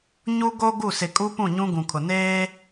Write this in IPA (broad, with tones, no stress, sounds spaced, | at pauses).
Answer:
ɲ u˦ ɡ o˦ ɡ u˦˨ s ɪ˨ kʼ u˦ p ũ˦˨ ɲ ũ˦ ɡ ũ˨ kʰ ʊ˨ n eː˦